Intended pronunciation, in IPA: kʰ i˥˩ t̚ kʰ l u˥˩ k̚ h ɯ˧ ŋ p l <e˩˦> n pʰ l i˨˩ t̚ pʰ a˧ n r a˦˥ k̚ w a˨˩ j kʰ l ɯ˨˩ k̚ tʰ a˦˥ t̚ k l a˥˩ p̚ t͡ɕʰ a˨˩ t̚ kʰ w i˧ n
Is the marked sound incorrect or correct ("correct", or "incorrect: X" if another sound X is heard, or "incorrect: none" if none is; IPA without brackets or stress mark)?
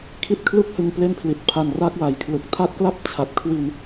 incorrect: e˥˩